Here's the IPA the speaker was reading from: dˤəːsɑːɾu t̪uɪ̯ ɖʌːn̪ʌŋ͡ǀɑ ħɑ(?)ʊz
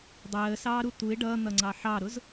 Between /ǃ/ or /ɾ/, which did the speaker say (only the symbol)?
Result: ɾ